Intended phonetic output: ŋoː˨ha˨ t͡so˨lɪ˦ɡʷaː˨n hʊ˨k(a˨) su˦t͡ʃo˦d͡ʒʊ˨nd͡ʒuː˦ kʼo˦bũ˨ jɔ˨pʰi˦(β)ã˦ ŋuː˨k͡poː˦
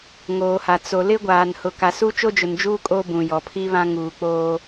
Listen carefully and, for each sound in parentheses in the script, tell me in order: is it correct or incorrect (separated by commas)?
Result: correct, correct